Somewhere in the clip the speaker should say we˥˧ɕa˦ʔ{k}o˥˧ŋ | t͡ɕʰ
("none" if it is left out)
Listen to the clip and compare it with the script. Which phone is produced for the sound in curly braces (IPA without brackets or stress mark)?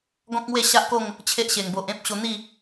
k